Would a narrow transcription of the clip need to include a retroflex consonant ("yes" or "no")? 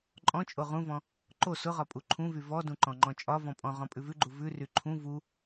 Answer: no